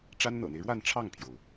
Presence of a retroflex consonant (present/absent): present